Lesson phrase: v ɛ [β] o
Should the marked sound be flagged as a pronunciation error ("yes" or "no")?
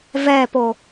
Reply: yes